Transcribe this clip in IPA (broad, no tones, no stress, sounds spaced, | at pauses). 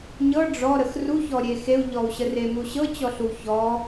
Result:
ɲ ɤ ɖ͡ʐ ɔ ɾ ə x r u ç ɔ ɾʲ e x e u̯ ʎ ɔ u̯ ɕ ə r e m u ɕ ɤ t͡ɕ ɔ ɬ u ç ɔ